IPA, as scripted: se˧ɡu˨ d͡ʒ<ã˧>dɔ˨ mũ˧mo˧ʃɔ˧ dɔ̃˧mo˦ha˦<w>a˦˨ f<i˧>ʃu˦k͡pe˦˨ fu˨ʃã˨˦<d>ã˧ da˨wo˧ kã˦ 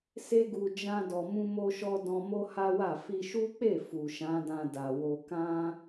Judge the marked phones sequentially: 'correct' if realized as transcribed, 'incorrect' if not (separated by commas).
correct, correct, correct, correct